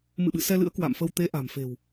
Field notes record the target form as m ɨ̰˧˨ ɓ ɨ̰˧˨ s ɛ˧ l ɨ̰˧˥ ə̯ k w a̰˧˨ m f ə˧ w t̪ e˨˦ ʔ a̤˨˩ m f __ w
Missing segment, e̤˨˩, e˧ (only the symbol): e̤˨˩